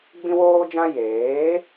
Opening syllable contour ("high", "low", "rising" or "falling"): high